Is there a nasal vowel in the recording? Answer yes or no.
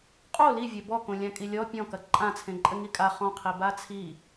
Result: yes